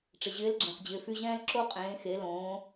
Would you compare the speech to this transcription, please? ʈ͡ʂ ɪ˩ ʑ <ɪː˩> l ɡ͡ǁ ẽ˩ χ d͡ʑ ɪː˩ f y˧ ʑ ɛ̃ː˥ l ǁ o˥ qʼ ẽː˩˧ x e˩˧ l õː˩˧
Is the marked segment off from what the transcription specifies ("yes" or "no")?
yes